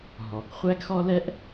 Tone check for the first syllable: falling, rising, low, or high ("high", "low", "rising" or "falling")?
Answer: low